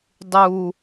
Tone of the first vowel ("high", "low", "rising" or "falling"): high